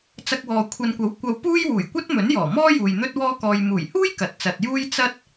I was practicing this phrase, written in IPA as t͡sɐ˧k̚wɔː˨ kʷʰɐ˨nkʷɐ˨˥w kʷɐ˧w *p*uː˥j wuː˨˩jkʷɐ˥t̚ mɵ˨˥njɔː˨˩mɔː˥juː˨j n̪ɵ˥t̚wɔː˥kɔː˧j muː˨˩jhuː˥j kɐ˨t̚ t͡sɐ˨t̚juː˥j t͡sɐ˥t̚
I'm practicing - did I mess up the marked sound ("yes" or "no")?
no